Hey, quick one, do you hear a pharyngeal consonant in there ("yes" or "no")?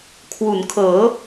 no